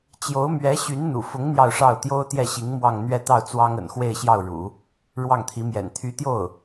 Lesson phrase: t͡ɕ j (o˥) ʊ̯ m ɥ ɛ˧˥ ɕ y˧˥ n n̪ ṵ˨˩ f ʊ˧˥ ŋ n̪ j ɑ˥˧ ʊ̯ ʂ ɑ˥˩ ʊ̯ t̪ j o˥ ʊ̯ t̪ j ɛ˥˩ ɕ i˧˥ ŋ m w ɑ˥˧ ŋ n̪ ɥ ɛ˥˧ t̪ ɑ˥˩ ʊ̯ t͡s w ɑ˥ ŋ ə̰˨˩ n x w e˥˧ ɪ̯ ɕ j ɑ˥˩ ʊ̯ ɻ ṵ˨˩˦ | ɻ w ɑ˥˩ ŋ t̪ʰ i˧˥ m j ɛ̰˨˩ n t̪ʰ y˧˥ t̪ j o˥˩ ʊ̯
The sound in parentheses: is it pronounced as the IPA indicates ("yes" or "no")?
no